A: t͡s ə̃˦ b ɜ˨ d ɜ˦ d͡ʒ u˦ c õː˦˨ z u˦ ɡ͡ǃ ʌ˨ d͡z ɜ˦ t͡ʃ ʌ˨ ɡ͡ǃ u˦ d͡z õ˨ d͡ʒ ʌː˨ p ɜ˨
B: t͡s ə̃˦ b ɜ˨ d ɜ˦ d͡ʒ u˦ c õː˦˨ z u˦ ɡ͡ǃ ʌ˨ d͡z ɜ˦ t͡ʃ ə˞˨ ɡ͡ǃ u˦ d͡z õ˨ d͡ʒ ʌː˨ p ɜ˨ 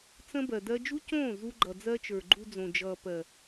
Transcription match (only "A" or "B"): B